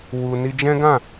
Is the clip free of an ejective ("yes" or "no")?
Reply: yes